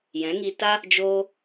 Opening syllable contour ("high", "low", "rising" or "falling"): rising